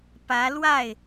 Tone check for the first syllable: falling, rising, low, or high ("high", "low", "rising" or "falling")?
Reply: rising